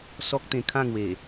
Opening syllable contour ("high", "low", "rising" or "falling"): high